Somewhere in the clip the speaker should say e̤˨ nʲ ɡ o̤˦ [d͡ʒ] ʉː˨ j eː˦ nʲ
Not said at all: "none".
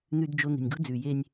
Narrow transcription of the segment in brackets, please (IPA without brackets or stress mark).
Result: d͡z